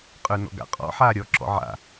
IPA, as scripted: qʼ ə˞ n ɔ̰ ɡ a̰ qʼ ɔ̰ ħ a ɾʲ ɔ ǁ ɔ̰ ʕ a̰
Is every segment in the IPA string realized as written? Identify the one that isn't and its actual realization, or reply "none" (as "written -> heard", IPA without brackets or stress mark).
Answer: none